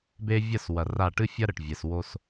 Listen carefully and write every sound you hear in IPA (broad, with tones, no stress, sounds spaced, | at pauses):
b e˦ vʲ ɐ˦˨ s w ɐ˨ r a˦˨ ʈ ɨ˦ fʲ ɐ˦ ɾ ɘ˨ ʈ vʲ ɛ˨ s w o˧ s